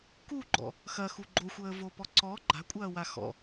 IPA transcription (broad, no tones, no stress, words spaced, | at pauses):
kuɡ͡ǃɔ̰ | xɐxu ɡ͡ǃoxʷəːvopɔ ǀɔ ɡ͡ǃa̤kʷʼɐːwa xɔ̰